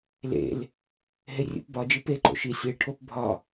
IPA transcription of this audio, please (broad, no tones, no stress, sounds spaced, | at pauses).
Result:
l ḛ l | ɦ e rʲ ṵ p b ɒ d͡ʒ i p e ǃ o̰ ʃ i sʲ i ɭ ʈʰ o p bʱ ɒ